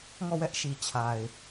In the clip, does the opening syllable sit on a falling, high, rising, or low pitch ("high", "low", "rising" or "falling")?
falling